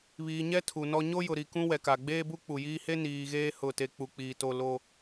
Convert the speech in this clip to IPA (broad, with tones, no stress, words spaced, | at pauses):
βiː˨ɲɛ˦ tʰu˨nɔ˦ ɲo˦jʊ˨ ɾi˨kũ˦ wɛ˨ka˨ ɡ͡beː˦bu˦k͡pu˨jiː˦ he˦ niː˨ɣeː˦ hʊ˦˨te˦ k͡pu˨k͡piː˨ to˦lo˦